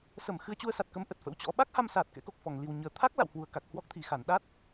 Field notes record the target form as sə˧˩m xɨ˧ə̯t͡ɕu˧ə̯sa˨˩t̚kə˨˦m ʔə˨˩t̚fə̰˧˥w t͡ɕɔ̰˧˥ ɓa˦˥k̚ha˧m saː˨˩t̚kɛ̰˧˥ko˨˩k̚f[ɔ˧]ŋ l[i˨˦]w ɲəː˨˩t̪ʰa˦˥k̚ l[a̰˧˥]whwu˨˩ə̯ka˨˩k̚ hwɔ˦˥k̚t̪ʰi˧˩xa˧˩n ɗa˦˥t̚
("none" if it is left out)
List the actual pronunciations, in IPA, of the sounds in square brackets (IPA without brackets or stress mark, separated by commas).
ɔ˧˩, i˨˩, a̰˧˨